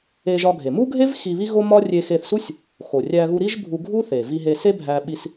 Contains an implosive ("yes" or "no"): yes